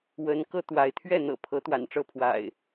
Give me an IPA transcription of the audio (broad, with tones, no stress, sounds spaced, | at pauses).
w ə˨˦ n k ɤ˧ t̪ w a˨˦ ɪ̯ t̪ʰ ɥ ɛ˥˨ n̪ ɤ̰˨˩ pʰ ɤ˨˦ t̪ w a̰˨˩ n ʈ͡ʂ ɤ˥˨ pʰ w a̰˨˩ ɪ̯